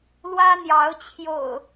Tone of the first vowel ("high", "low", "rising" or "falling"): high